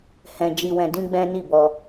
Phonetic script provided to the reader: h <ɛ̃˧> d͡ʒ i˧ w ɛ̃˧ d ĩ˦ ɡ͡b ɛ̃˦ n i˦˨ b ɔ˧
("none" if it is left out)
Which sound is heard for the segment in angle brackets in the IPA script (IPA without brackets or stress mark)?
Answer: ɛ̃˧